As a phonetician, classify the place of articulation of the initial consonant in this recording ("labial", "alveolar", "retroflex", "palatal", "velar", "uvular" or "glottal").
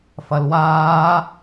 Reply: labial